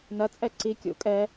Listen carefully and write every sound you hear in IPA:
nɐ t͡sʼɛǀi kʲṵkʼɛ

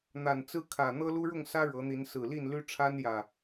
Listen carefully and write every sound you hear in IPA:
n̪a˨˩nt͡sɹ̩˦kʰä˨˩ n̪ɤ˦lu˦ɻʊ˥˨ŋsä˦ ɻɤ˨˦n̪i˨˦n sɹ̩˨˩li˥˨nly˦ ʈ͡ʂʰa˦njä˨˩

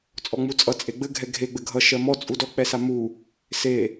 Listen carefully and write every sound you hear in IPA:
t͡sʼɔŋ͡mut͡sʼʌ t͡sʼeɡ͡bɘ ɡʱɛɡʱe ɡ͡bɘɡʱʌ ʃɜmɔ t͡sʼudɔ k͡pɛsamu | se

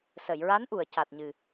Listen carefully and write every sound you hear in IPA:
sə˨˩˨jɹa˧˥nʔu˨˩˨ə̯ ca˨˩t̚ɲɨ˨˩

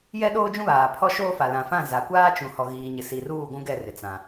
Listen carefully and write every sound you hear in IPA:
jɛ˦ɗoː˦d͡ʒũ˦βaː˨ pʰɔ˦ʃoː˦fa˨ lã˨fã˦˨ za˨kʷaː˦t͡ʃũ˨ hɔ˨ɣiː˨ ɲɪ˨si˨ruː˦˨ ɡʷũ˦ɡɛ˦˨rɪ˨ t͡sã˨

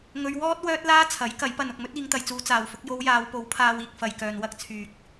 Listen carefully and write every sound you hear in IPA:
ŋɵ˧ɥwɔː˥t̚ wœː˥t̚laː˥t͡sʰɐ˨˥j kɐ˨˥jpɐ˨˧nʊ˨k̚ mɵ˥t̚iː˨˧ŋt̪ɐ˨jt͡suː˧ t͡saː˨wfʊ˨˥k̚ jo˧wjaː˨˧wpo˨˥w pʰaː˧wiː˨k̚fɐ˨j kœː˨nwɐ˥k̚t͡sʰyː˨k̚

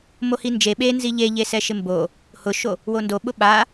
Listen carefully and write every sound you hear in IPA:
mohind͡ʒe ɓenzi ʎeʎesɛ ʃɪmbo | hʊʃo | wondoɓʊ ɓa

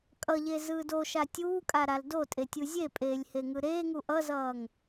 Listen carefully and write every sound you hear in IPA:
kʼʌʎe zɯːdoʃa tʲuːkʼa ɾaldotʼe tʲuzʲepʼeːlʲ heŋɯɾeːŋu ʔʌzʌːŋ

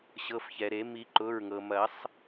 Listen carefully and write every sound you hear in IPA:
ɕɤ˩˧˩fçɛ˩ɾe˨˩˦ mi˨˩˦ ǃʊ˩˧˩ɹŋɤ˩mɐ˨˩˦sˤ

